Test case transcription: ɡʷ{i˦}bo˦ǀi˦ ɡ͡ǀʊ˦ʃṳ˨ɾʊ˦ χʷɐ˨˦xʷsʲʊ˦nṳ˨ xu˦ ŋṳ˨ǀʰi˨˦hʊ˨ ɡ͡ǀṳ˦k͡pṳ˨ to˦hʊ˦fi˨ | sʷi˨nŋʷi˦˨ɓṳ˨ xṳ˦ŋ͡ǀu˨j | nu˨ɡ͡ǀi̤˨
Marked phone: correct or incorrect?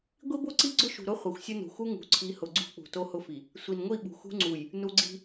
correct